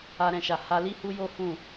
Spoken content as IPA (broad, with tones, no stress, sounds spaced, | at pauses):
a˧ ɾ ɛ̃˧ ʃ a˧ h a˧ l i˦ h u˦ j o˦ h ũ˦˨